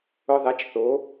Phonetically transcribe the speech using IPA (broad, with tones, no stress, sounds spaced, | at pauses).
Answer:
ʊ˧ ðˤ e˨˥ t͡ʃ θ o˨˥